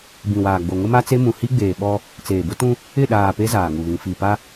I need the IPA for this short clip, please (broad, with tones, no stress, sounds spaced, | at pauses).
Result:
b ĩ˨ w aː˨ ɡ͡b o˨ ŋ ʊ˦ m a˦ t͡s e˦ m ũ˨ h i˦ ɡ͡b eː˨ ɓ ɔ˦ | t͡s eː˨ b ʊ˦ t ũ˦ | ɪ˦˨ ɗ aː˨ p e˦ z aː˨ ŋ u˨ β ĩ˨ f i˨ p a˦